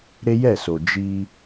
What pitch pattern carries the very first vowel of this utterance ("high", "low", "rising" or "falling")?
high